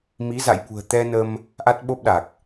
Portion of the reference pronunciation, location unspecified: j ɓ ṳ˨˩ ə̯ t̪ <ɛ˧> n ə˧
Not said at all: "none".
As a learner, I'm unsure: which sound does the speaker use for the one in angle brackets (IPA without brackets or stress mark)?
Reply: ɛ˧